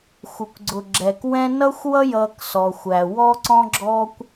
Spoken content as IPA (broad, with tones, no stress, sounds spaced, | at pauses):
xʷ ə˩ kʷ ɡ͡ǀ ʊ˩ ɡ͡ǁ ɛ˩ k w ɛ̃˦ n ʌ˥ xʷ w ʌ˥ j ʌː˨ k s ɔ˨ xʷ æ˨ w ɔ˦ ǀ ɔ̃˦ ɡ͡ǁ ɔ˥ kʷ